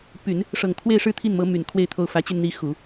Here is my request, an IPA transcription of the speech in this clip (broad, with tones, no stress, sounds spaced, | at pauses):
p y˨˩˦ n | ʂ ɤ˨˩ ŋ t̪ʰ w e˥˧ ɪ̯ ʂ ɻ̩˥˧ t̪ʰ i˥˩ n m ɤ˧˥ m y˨˩ n kʰ w e˥˧ ɪ̯ t̪ʰ o˥˩ ʊ̯ f ä˧˥ t͡ɕ y˧ n n̪ i˧˥ x u˨˩˦